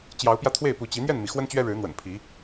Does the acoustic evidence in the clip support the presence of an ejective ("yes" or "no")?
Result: no